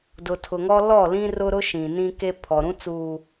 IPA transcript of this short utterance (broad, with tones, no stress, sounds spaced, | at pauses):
d ʊ˨ tʰ ʊ˨ ŋ ɔ˦ l ɔ˦˨ l ĩ˦ r ʊ˦ ɾ ʊ˦ ʃ ĩ˨ n ĩ˦ k e˦ pʰ ɔ˨ ɾ ũ˦ t͡s uː˨